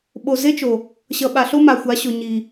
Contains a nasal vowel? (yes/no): no